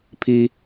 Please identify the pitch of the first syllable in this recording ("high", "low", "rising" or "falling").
high